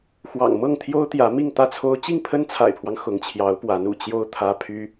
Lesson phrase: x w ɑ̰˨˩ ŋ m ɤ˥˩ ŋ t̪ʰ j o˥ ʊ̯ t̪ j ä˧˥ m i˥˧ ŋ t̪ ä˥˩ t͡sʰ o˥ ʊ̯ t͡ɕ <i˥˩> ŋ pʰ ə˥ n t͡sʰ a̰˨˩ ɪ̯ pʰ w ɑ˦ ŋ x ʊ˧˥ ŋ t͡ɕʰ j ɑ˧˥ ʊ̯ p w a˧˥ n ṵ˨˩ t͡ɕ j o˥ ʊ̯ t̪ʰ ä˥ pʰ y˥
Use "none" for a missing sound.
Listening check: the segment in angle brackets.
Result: i˥˩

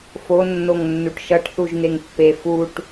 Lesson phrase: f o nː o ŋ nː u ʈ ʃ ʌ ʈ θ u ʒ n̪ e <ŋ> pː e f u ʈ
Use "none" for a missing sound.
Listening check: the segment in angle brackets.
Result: ŋ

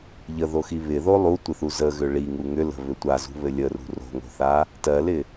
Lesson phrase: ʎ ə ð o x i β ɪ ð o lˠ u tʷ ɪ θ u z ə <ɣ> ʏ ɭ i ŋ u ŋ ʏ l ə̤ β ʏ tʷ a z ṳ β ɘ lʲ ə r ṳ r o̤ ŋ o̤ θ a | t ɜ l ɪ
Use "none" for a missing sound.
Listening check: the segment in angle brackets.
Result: ɣ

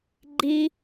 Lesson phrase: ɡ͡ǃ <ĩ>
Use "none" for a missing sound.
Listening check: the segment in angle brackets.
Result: i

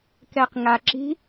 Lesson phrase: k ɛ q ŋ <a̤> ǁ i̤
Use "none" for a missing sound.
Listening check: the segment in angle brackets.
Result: a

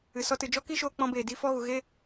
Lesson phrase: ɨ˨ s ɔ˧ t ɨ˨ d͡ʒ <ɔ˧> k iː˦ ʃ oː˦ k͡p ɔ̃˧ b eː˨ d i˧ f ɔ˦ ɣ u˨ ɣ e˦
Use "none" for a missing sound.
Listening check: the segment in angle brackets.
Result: ɔ˦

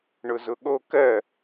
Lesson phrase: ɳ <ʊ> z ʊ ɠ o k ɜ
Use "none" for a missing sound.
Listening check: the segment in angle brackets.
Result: ʊ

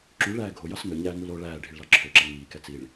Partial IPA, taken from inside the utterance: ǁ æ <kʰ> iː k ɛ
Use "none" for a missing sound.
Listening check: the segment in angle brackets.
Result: ŋ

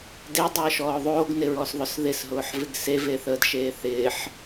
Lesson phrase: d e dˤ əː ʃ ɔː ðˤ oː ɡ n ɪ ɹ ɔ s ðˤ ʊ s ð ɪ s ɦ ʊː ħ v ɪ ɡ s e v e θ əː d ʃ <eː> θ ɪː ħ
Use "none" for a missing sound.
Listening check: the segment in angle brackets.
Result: eː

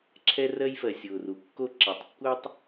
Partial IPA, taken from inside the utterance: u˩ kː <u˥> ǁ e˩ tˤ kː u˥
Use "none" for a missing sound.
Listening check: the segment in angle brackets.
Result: o˥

